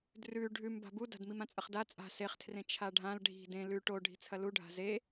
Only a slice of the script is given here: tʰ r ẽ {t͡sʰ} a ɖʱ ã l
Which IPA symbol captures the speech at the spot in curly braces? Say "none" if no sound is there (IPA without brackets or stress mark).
t͡ʃʰ